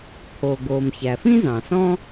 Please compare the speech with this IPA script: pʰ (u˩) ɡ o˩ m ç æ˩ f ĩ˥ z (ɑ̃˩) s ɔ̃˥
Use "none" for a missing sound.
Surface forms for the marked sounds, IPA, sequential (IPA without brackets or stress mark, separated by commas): o˩, ɑ̃˩